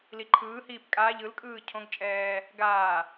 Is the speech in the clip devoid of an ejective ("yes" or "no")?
no